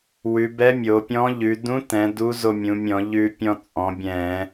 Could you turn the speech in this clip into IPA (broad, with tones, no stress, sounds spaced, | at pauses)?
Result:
w ʉ˩˧ b ɛ˧˥ mʲ o˩˧ pʲ ɔ̃˧˥ ʎ ʉ˩˧ d ũ˧˥ t ɛ̃˩˧ d u˧˥ z o˧ mʲ ũ˩˧ mʲ ɔ̃˧˩˧ ʎ ʉ˧ pʲ ɔ̃˧ t͡sʼ ɔ̃˩˧ bʲ ɛ̃˧˩˧